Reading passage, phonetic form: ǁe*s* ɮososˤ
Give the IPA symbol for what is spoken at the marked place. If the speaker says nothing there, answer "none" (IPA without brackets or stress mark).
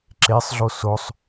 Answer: sˤ